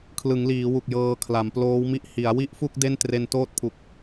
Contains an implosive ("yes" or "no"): no